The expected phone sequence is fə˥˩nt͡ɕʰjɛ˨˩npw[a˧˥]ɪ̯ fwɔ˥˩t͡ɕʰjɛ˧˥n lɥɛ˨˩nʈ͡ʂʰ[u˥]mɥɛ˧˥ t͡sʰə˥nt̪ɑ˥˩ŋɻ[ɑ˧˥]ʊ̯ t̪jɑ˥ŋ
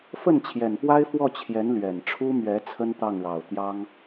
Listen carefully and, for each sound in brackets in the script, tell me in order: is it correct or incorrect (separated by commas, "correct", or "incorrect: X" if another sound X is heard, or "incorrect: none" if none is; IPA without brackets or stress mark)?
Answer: incorrect: a˥, correct, incorrect: ɑ˨˩